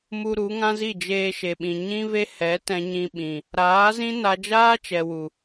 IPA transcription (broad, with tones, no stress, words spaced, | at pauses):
mu˧ ɾu˨˦ŋã˦zi˦˨ d͡ʒeː˧ʃe˨ɓĩ˨ ɲĩ˦ve˦ hɛ˨˦tɛ̃˧ɲĩ˧ɓĩ˨ | ɾaː˨˦zĩ˦ na˧d͡ʒaː˦t͡ʃɛ˨wu˨